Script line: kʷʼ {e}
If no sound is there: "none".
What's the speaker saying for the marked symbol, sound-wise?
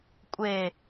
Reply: e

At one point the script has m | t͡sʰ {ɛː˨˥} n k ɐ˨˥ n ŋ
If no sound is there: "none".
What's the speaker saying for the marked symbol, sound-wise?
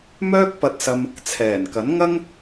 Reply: ɛː˨˩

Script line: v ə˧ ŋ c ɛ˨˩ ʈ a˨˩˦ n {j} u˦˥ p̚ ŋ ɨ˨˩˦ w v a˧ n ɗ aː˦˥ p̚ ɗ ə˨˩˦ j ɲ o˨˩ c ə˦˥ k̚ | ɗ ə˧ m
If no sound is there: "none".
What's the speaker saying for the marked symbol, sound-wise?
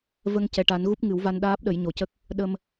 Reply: ɣ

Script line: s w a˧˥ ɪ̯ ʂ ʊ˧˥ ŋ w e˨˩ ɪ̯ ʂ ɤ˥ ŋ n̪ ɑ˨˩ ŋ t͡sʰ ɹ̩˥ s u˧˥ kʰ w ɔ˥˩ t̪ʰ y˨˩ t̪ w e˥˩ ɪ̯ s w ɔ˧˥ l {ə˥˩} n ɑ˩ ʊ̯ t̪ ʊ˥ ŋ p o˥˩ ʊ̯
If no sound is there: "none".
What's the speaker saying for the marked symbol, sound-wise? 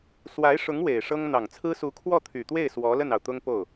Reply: ə˥˩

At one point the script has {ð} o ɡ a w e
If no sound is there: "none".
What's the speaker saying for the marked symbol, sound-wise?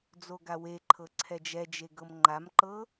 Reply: d͡z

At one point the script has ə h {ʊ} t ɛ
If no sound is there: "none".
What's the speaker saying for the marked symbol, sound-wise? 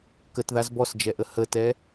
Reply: ə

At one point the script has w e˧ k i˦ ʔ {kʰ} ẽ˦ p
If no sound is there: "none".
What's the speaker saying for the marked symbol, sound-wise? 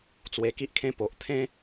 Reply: kʰ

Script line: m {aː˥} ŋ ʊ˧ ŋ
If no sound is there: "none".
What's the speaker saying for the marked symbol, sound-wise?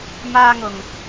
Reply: aː˥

